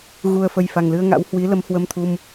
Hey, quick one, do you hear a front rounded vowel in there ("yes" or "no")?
no